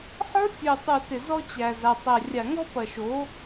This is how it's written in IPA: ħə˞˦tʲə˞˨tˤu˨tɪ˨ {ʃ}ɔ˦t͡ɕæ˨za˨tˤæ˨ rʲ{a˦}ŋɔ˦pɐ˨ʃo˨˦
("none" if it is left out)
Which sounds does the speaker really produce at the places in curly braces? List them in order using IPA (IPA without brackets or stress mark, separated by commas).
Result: z, a˨